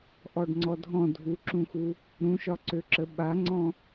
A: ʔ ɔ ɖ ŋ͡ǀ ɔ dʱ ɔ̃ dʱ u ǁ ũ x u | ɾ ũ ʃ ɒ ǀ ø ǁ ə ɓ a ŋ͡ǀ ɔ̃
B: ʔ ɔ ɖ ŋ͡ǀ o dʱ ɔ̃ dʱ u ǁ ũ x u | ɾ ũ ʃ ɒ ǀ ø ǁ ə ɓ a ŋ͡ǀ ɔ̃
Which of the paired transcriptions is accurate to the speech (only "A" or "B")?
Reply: A